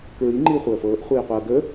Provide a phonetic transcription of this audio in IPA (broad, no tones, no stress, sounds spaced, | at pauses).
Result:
k ɹ i ŋ͡ǃ iː χʷ əː f ɤː ʔ χʷ iː qʷ ɤː ɡ əː